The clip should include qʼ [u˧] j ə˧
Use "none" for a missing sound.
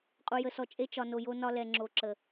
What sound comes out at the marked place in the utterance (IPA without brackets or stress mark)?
u˧